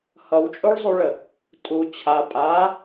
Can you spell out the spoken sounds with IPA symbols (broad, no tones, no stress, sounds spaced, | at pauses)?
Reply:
h ʌ w t͡ʃʼ o ɭ zˤ u ɭ ə | tʼ u t͡ɕʰ a pʼ a